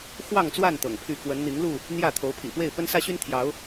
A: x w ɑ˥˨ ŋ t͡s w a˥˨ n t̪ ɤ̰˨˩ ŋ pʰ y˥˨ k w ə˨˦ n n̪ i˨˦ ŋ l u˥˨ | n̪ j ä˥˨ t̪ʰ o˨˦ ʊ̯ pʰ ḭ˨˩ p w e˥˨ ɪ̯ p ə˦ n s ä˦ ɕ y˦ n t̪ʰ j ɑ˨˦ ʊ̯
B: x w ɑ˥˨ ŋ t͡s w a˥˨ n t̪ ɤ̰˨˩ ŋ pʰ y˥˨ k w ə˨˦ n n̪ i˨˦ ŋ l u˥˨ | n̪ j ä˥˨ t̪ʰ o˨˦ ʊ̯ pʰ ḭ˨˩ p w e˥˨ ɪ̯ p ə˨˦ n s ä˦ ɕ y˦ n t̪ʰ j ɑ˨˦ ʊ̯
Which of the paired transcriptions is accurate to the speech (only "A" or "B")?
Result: A